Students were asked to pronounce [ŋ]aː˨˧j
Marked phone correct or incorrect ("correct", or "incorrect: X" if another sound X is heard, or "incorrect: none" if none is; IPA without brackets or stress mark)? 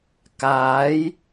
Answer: incorrect: k